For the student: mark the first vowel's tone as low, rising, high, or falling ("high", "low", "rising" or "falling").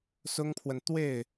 high